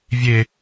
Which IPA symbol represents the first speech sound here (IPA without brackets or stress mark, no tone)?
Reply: vʲ